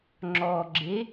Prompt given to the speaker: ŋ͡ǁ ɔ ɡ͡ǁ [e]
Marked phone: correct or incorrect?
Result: correct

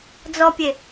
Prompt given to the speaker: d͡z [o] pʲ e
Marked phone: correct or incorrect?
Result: incorrect: ɔ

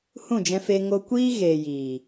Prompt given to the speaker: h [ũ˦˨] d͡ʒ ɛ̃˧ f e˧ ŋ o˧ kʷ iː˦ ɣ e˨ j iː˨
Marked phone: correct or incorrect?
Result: correct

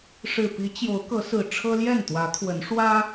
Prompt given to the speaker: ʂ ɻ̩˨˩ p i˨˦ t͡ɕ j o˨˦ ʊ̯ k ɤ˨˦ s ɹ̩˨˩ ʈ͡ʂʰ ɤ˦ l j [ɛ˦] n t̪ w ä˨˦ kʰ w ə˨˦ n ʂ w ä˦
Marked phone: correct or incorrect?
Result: incorrect: ɛ˥˨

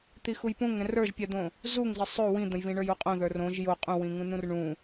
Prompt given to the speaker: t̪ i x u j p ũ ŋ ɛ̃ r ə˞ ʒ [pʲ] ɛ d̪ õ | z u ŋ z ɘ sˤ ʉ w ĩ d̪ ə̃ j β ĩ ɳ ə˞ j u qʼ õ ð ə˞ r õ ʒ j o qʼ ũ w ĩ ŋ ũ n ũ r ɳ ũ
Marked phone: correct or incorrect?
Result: correct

